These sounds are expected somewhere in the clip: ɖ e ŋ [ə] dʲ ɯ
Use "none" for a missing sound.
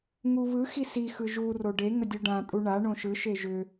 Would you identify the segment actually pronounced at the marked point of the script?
ə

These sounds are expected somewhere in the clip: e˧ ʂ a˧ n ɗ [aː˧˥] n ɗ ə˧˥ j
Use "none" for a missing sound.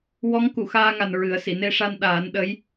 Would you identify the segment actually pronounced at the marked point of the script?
aː˨˩˦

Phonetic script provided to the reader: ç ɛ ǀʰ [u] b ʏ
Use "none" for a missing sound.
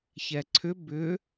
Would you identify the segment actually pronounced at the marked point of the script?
ʏ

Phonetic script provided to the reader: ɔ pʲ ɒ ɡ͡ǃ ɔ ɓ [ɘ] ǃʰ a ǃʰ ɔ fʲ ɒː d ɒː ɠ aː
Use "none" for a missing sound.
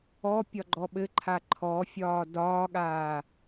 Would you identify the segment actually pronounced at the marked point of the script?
ɘ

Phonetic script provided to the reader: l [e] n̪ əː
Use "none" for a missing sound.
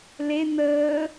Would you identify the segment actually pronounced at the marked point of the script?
e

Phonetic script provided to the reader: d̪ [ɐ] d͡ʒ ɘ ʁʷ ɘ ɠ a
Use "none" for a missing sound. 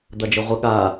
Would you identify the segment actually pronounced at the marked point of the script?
ɐ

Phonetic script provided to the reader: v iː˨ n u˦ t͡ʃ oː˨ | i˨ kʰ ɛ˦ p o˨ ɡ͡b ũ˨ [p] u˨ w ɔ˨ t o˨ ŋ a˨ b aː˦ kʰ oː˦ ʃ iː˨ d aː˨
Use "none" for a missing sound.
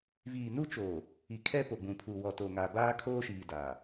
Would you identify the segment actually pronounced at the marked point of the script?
pʰ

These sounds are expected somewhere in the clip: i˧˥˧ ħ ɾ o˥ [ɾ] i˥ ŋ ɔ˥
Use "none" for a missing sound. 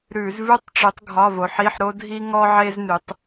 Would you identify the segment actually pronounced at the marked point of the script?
dʱ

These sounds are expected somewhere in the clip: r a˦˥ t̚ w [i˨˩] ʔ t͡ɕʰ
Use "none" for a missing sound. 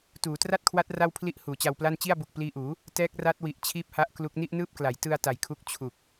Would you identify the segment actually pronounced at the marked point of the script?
i˨˩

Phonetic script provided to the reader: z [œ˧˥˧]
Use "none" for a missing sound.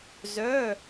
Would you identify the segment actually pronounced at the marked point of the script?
œ˧˥˧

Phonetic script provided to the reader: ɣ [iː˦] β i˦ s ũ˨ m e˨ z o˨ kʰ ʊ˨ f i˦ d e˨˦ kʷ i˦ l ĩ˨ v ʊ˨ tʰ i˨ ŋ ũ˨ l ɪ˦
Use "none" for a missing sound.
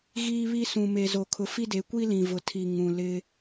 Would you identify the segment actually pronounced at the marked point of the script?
iː˦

